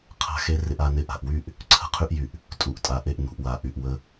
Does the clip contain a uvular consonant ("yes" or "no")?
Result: yes